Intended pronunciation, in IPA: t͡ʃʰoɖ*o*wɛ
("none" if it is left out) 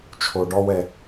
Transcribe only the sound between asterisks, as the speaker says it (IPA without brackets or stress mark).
ɔ